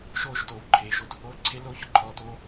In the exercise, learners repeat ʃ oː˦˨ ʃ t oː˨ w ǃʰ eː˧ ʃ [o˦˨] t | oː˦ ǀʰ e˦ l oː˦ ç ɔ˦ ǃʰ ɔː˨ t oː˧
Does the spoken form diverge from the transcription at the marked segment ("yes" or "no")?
yes